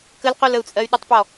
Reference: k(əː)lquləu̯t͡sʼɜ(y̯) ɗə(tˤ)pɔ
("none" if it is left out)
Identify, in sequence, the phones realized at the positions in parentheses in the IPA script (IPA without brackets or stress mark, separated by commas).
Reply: ə, y̯, tˤ